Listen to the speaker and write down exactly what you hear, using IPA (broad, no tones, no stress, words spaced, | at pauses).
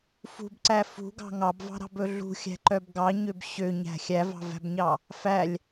fṳbǀæ fṳɡɑ̤ ŋɑbvɑ̤ɾɑ̤bɵ ɮṳxʲæ̤ǃœb ɡɑɲøb ɕøɲæ̤ xʲævɑ̤væ̤bɲɑ | fælʲ